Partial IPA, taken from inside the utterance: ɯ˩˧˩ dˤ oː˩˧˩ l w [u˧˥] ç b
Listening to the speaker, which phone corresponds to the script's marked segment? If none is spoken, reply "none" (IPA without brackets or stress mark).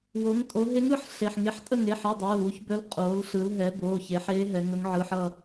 u˧˥